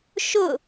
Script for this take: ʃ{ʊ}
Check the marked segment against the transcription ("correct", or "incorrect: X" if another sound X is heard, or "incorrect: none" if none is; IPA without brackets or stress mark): correct